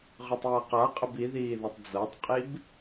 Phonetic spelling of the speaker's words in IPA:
ʁ ø tˤ j a q a qʼ ə b i ð iː ð ɒ tˤ d͡z ɤ tˤ qʼ i b

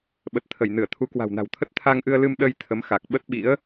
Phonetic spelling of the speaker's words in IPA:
ɓ ə˨˩ t̚ t̪ʰ ə˧˩ j n ɨ˧˩ ə̯ t̪ʰ u˨˦ k w a̤˨˩ w n a̤˨˩ w t̪ʰ ə˦˥ t̚ t̪ʰ a˧ ŋ ʔ ɨ˧ ə̯ l ɨ˧ m ɗ ə˧ j t̪ʰ ə˨˦ m x a˨˩ k̚ ɓ ə˦˥ t̚ ɓ ḭ˧˥ ə̯

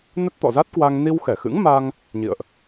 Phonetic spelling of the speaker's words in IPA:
n ə˦˥ t̚ t̪ ɔ̰˧˨ z a˦˥ t̚ k w a˧ ŋ n i˧ w x ɛ˧˩ x ɨ̰˧˥ ŋ m a˧ ŋ | ɲ ḭ˧˨ ə̯ ʔ

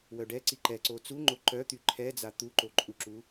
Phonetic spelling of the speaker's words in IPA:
w œ ɖ ɛ ǀ i ǃ ɛ ǀ o t͡s u ŋ͡ǃ o ǃ œ t̪ y ǃʰ ɛ d͡z a t̪ u ǃ o ǃʼ u ǁ u

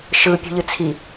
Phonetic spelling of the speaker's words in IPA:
ʃ ɯ pʲ ṳ ʎ ɯ t͡sʰ i

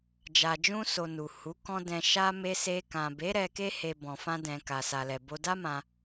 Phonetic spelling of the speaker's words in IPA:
d͡ʒ a˨ d͡ʒ ũ˧ s o˨ n u˨ h u˨˦ k ɔ̃˦ d ɛ̃˧ ʃ a˦ m e˧ s e˧ k ã˨ b e˨˦ ɾ ɛ˧ k e˦ h e˧ b ɔ̃˨ f ã˧ d ɛ̃˨ k a˨ s a˨ l ɛ˨ b o˧ d a˦ m ã˧

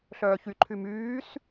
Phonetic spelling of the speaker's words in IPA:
ɬ œː ç y ǃʰ y m yː s

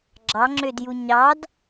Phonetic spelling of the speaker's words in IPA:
ɡ͡ǁ ɑ ŋ͡ǁ ø d j u ɲ ɑ d

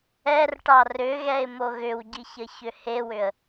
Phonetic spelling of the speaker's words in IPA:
ɛ r ʈ ɑ r ʏ ɣ ɛ ɪ̯ m o ɣ ʏ w ɟ i ç ə ç ʏ h e w ʏ ə̯

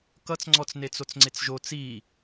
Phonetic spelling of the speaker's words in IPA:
k ʌ t͡s ŋ͡ǀ ɔ t͡s n e t͡s o t͡s ŋ͡ǀ e t͡s ʒ o t͡s i

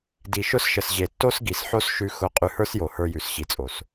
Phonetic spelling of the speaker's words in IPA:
d i˨ ʃ ʊ˦ s ʃ ə˨ s ʑ e˨ tː o˦ s ɡ i˨ s ħ o˦ s ʃ ʉ˧ x ʊ˧ qʼ ʉ˧ h ə˞˦ s j o˨ h ə˞˧ j ʉ˨ s ɕ i˨ t͡sʼ o˨ s

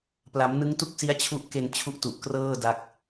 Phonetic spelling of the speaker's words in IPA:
p l a˩˦ m n ɯ˦˥ ŋ t u˥˩ k̚ s i˦˥ a̯ t͡ɕʰ u˦˥ ʔ k e˧ n t͡ɕʰ u˦˥ ʔ t u˨˩ ʔ k r ɤː˥˩ d a˥˩ k̚

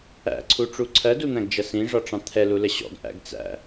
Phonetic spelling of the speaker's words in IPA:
æ̰ ǀʰ u ʈ͡ʂ u ǀʰ ɜ d u n̪ æ̃ ɡ d͡ʒ ʌ s ĩ ʐ ɒ ʈ͡ʂ ɑ̃ t̪ʰ ɛ l u l ə ɕ ɔ̰ ɡ ʔ æ̰ ɡ t͡s æ̰

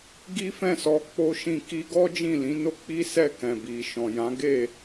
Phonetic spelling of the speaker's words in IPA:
ɡ i˦ f ɛ̃˦˨ s ɔ˨˦ k͡p o˦ ʃ ĩ˦˨ k i˧ ɡ ɔ˦ d͡ʒ ĩ˦˨ l ĩ˨˦ n o˦ k͡p i˦ s ɛ˦˨ k ɛ̃˨ b i˨ ʃ ɔ̃˨ j ã˨˦ ɡ e˦˨

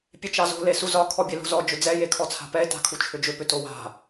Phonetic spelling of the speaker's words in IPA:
pʲ e t͡ʃ ɑ z o̤ l e s u z ɒ kʰ ɔ bʲ e l o̤ z ɔ d͡ʒ ʏ d͡z ɛ j e kʰ ɔ t͡sʰ a̤ p ɛ e̯ t a̤ kʰ u t͡ʃʰ ʏ d͡ʒ ʏ p ʏ t o w a̤

